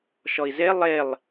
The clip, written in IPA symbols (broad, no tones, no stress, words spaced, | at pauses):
ʃɔi̯ze lˠelˠ